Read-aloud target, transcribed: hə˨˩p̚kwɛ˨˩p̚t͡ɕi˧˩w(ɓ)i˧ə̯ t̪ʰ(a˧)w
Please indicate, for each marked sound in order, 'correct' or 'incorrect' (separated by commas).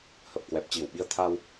correct, correct